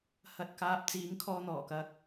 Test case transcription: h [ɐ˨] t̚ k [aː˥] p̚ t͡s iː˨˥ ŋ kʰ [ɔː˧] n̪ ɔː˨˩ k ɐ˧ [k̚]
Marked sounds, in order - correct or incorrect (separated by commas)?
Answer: correct, incorrect, correct, correct